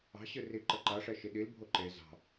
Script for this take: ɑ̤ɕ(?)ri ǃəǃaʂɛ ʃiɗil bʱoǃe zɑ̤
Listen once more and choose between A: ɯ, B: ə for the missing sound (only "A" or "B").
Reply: A